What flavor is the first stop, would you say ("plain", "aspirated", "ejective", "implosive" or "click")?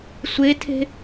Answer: aspirated